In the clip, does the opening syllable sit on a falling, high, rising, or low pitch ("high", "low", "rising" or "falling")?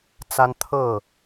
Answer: high